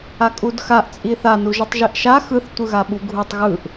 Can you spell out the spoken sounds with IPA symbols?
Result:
akʼudxaʔ t͡sʼiθa nuʒɯtˤʒiʔʃa xɯθ tʷɯɣaɓuɡʱutˤ ɣɯʔ

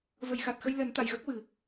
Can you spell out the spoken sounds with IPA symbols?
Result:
və˨˩˨jxa˨˩t̚xə˧j lɛ˨˩˦nt̪a˨˩˨jɣə˦˥k̚wɨ˨˩˨

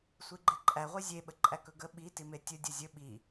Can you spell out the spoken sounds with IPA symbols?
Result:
sʷiɡ͡ǃeǃʼæ ʁʷizʲe ɓəǃʼækɵɡə ɓi timetʲɵ dʲəzʲɵ ɓi

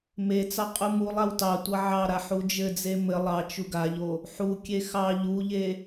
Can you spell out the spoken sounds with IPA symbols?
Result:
met͡sɑ qʼumulˠaw tɑ tʷʌʕɑɾa ħud͡ʒɘd͡ze mɘ lˠɑ t͡ʃuɡaʎo | ħukʲe xɑ ʎuʎe

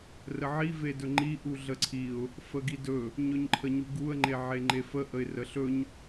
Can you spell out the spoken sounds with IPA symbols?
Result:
rəʕi vedɵŋ͡ǃi ʔuɮəǀʰiʊ̯ | fəɡidɵ | ɲɵɲǃʰəɲuɡuə̯ ŋ͡ǃeʕeŋ͡ǃefə ʔəɪ̯rəɬɵɲ

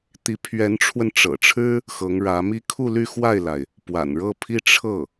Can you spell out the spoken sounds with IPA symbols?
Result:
t̪i˧˥pʰɥɛ˧˥nʈ͡ʂʰwə˧nʈ͡ʂɤ̰˨˩ ʈ͡ʂʰɻ̩˥ | xɤ˧˥ŋɻä˧˥mi˥ kʰu˥˧ly˥˧xwa˥˩ɪ̯la˩ɪ̯ | pwa̰˨˩nɻɤ˥˧pʰi˥˧ ʈ͡ʂʰɤ˥˩

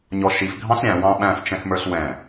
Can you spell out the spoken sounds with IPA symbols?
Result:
ɲɔʃif ɡʱɑ̃ɬɾʲæ̃ wɑ̃ɓæ̃f t͡ʃɛ̃xmə˞ɬwɛ̃

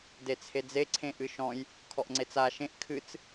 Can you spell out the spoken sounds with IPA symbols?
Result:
det͡sʰed͡ze ǀʰẽʔɨʃɔ̃j | kʰɔʔŋ͡ǀet͡sa ʃẽʔ kʰɨt͡s

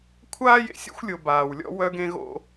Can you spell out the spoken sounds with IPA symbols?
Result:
kʷʰaː˦jḛ˨sʲo̰˦xʷ lʲo˨ baː˨wlʲɔ̰˦ wœ˦ɡẽ˦ ɣo̰˦

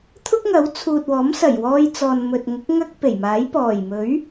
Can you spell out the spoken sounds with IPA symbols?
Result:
t̪ʰʊ˥k̚ŋɐ˨˥w t͡sʰuː˨t̚wɔː˨˥m sɐ˨˩jwɔː˧j t͡sɔː˨nmɵ˨t̚ŋʊ˨˥k̚ ŋɐ˥k̚ pe˨˩jmaː˨˥j pɔː˨˩jmɵ˨˥ɥ

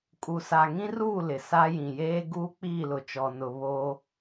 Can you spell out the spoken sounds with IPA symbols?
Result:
kʼu˨sa˨ŋĩ˦ruː˦˨ lɪ˨ sa˦jĩ˨ jeː˦ ɡuː˦k͡piː˦˨lʊ˨t͡ʃɔ˨ nʊ˨ βoː˦

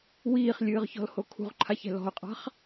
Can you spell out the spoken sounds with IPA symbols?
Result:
wiːχlʲɨːʁçɔ̤lho kʰṳʁǃʰaçɛ̤ lɔ̤ʊ̯qʼa̤χ

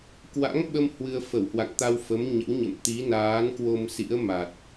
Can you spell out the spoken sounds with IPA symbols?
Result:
kwa̰˧˥ŋɓə˧m hwɨ˧ə̯fə˧˩whwa̰˧˨ŋ t̪a˧wfə˨˦m ɲə̰˧˥wɲə̰˧˨m t̪i˨˦naː˨˦nkwo˧m sḭ˧˥ə̯ma˨˩t̚

